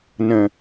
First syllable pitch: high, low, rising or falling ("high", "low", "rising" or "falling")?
low